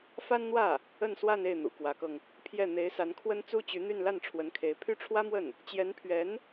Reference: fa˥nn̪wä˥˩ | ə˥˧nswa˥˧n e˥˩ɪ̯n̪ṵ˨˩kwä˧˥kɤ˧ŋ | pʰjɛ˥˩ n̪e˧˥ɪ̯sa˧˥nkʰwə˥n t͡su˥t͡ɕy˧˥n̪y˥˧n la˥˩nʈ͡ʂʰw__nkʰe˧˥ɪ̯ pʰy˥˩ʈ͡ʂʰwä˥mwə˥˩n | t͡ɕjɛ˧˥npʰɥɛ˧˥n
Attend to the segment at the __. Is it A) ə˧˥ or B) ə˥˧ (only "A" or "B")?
A